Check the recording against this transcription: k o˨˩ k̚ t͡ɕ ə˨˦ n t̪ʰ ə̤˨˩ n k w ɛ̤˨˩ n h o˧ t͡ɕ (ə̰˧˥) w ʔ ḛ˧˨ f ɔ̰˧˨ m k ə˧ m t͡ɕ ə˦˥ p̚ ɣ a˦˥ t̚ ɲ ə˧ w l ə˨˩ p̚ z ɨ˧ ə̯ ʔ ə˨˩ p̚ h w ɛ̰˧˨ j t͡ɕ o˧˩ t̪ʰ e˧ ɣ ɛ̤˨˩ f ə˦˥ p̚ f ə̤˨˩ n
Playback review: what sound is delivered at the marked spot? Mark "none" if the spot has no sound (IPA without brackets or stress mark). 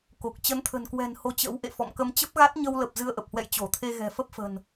ə̰˧˥